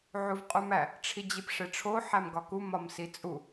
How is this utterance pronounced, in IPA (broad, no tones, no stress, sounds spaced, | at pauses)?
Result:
ʕ u v qʼ u m æ | ʈ͡ʂʰ i d͡ʑ i p ʂ e ʈ͡ʂʰ o ħ æ m ɡ ɒ k u m ɒ m s i t͡sʼ u